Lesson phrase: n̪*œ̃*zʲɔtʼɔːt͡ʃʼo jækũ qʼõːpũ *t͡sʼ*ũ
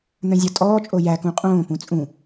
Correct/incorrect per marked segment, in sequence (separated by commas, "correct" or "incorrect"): correct, correct